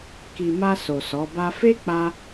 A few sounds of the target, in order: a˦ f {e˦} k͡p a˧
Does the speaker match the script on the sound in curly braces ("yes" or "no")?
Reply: yes